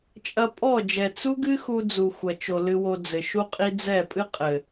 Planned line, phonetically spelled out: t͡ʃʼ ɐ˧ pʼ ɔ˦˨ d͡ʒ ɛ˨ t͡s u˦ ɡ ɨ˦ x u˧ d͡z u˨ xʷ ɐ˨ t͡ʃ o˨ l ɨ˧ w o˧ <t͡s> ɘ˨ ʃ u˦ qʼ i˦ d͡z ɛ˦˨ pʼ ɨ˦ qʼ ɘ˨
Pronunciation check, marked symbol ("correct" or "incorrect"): incorrect